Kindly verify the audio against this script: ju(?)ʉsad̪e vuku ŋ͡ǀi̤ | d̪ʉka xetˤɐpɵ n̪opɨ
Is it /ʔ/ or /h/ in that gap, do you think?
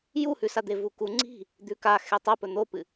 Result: h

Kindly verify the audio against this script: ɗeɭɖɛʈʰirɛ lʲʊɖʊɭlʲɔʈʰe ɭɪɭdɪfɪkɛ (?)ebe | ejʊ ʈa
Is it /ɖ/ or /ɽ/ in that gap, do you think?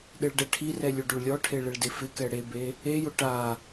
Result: ɽ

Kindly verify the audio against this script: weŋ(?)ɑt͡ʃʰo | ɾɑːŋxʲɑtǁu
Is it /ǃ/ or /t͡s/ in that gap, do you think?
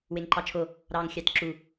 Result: ǃ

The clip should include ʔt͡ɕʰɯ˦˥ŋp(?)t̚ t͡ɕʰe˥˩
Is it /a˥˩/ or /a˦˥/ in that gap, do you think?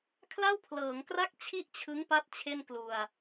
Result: a˦˥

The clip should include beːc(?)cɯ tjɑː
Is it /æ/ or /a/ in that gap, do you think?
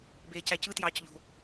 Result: æ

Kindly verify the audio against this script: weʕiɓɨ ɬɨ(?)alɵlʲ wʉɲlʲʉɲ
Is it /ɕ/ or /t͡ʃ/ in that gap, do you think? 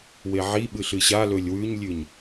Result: ɕ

